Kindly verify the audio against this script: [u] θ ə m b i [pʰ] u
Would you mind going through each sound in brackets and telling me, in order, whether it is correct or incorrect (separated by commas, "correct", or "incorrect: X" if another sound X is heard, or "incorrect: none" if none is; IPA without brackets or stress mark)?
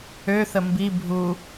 incorrect: ø, incorrect: bʱ